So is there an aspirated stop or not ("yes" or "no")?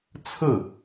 yes